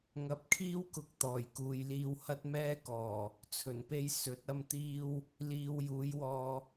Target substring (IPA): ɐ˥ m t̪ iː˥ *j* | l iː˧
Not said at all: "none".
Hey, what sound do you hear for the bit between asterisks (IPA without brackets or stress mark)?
w